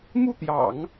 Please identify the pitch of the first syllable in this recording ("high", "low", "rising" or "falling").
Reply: falling